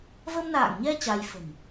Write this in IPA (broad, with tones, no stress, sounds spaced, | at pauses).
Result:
v ə˧ m n a̰ː˧˨ ŋ ɲ ɛ˧ t͡ɕ a˧ j f ə̤˨˩ m